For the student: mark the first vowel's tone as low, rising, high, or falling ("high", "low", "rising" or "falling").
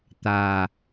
low